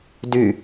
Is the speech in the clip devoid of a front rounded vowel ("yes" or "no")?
no